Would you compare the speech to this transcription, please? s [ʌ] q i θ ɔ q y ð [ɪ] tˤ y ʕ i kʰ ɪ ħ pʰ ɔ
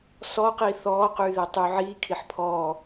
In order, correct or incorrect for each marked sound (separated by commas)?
incorrect, correct